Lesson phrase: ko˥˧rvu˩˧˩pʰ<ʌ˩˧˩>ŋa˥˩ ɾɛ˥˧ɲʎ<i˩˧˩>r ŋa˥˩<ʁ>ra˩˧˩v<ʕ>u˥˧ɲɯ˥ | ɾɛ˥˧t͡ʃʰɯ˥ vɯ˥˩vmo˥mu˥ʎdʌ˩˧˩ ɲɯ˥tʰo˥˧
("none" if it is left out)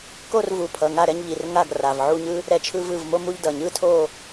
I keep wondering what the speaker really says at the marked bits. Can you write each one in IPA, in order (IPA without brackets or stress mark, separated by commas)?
ʌ˩˧˩, i˩˧˩, ɡ, ʕ